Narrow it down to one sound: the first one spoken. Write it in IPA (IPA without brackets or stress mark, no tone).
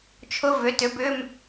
t͡ʃʰ